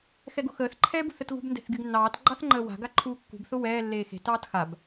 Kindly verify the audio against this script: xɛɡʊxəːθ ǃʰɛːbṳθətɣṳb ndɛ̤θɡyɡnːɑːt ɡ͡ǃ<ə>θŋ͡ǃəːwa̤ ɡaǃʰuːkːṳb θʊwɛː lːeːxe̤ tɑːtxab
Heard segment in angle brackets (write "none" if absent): ɑ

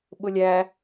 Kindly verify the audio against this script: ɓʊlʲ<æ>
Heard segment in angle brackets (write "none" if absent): æ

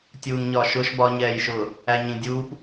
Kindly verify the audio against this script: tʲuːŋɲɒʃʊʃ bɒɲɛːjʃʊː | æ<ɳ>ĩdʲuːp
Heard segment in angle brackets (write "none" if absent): ɲ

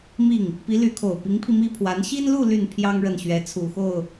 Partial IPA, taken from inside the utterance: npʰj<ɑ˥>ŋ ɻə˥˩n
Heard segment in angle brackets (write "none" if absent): ɑ˥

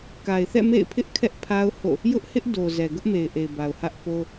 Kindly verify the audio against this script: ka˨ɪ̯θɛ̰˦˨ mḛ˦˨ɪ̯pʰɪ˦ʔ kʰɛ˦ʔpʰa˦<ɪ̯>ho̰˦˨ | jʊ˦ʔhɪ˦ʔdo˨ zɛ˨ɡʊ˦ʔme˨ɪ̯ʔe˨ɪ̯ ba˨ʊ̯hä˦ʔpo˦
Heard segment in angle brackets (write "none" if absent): ʊ̯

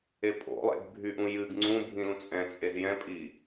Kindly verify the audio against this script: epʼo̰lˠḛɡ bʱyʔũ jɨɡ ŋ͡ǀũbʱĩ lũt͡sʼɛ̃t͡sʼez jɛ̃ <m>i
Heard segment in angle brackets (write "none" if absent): pʼ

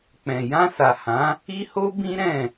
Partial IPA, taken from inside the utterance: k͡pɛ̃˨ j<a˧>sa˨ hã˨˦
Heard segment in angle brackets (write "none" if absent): ã˧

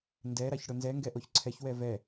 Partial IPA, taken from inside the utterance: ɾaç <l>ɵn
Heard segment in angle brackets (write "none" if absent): ɽ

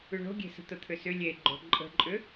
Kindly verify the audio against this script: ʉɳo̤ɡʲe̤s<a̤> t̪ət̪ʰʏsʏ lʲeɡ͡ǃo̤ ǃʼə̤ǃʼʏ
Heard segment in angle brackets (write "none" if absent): ə̤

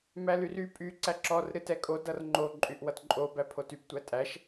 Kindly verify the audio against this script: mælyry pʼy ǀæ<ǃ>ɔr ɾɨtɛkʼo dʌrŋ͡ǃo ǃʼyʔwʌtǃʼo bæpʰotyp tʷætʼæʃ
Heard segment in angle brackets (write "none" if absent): ǁ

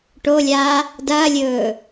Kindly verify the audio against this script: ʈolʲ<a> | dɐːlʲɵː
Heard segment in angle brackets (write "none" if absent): aː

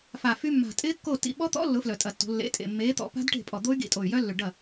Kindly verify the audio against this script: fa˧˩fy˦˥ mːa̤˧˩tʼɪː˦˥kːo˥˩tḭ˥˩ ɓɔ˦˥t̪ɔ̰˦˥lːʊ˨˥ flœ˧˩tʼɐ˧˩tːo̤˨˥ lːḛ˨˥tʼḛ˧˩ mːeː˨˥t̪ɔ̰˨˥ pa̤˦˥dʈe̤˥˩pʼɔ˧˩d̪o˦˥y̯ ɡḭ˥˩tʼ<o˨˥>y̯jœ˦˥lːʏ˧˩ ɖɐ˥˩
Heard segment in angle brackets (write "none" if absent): o˧˩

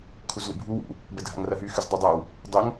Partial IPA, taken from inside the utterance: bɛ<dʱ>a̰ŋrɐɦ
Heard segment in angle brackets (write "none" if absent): dʱ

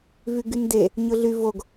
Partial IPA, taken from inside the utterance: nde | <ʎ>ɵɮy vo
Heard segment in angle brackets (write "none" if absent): ɲ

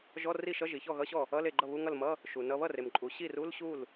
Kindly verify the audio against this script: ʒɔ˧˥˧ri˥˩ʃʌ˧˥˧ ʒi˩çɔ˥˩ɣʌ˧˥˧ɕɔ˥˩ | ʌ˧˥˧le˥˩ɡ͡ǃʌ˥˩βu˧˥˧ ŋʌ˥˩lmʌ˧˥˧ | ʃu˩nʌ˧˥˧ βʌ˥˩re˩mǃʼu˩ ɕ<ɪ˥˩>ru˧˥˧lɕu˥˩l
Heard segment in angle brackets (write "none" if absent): i˥˩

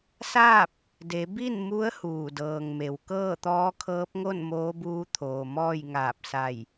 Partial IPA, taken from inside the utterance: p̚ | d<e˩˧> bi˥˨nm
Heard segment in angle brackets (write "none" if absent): e˩˧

